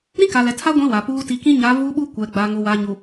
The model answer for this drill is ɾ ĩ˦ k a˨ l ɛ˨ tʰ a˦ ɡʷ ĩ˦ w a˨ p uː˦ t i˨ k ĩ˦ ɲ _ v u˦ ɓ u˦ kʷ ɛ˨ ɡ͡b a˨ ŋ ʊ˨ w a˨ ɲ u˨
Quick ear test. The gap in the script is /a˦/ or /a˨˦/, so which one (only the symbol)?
a˨˦